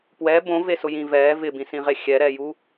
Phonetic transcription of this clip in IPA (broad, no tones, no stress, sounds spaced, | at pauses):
p w ɛ b õ v e s ʊ j ĩ v ɛː v ɪ b ĩ s ĩ ʁ e xʲ ɛ ɾ ɛː j u